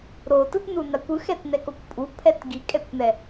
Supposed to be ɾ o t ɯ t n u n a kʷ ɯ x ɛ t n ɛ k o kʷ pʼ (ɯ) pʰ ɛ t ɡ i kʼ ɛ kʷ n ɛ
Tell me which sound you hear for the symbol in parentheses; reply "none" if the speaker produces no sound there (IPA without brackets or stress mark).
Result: u